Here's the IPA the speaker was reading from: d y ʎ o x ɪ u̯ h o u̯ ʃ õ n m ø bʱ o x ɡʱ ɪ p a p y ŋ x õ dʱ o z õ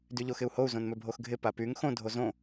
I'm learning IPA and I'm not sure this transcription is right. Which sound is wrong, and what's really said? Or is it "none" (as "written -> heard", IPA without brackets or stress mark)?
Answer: ʃ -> z